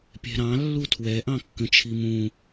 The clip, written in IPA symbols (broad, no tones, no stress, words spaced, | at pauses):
pʲɛ̤ɾɑ̃ lːutʰwɛ ʔɑ̃kːə̃t͡ʃʰimũ